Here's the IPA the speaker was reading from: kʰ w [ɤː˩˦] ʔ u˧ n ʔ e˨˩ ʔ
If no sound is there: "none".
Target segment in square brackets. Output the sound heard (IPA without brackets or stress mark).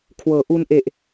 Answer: ɤː˩˦